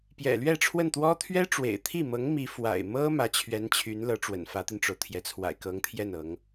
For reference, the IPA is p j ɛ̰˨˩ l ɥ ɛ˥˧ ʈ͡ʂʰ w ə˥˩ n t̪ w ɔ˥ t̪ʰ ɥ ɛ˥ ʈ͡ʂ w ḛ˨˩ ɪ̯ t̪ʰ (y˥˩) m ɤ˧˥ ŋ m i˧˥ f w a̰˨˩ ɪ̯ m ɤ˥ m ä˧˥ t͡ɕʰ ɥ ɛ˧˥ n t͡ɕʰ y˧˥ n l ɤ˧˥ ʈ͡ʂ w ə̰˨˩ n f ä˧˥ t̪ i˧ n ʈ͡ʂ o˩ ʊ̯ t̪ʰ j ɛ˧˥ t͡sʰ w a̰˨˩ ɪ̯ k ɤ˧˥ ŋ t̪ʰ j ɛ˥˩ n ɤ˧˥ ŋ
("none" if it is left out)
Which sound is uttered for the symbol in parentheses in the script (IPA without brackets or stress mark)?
i˥˩